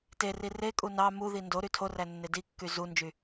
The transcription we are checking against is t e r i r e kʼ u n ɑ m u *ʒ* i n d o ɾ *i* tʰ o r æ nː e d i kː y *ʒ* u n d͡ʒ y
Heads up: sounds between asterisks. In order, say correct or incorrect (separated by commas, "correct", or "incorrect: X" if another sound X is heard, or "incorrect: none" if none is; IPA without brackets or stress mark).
incorrect: ð, incorrect: y, incorrect: z